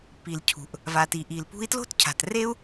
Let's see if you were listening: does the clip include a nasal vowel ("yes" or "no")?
no